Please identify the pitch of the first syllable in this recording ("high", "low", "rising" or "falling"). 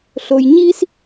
low